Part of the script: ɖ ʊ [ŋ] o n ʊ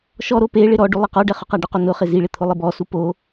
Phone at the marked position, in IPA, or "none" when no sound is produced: q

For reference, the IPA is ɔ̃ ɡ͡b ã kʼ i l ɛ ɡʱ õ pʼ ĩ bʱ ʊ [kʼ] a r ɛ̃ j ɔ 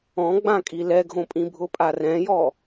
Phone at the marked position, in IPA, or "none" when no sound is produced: pʼ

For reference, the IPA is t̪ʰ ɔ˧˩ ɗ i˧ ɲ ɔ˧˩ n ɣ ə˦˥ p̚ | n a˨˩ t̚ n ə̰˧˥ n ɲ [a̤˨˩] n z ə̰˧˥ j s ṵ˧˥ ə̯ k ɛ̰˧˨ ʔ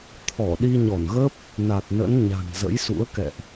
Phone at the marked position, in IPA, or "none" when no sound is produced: a̤˨˩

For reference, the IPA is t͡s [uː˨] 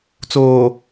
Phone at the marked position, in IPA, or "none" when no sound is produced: oː˨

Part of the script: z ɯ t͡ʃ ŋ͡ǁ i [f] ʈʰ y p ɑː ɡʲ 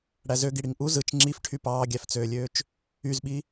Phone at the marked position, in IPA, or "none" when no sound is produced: f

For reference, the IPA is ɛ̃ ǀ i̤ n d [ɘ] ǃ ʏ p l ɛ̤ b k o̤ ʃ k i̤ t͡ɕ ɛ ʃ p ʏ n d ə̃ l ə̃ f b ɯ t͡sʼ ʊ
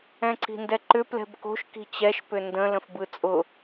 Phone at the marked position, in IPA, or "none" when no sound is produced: ɛ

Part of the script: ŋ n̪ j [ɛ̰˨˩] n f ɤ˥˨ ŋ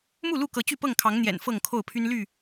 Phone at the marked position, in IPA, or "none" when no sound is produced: ɛ̰˨˩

